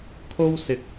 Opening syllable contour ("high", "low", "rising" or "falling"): high